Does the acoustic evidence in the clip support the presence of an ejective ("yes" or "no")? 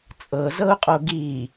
yes